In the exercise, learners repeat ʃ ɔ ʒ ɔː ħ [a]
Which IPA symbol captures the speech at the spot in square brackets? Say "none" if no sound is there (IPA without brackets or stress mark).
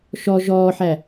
æ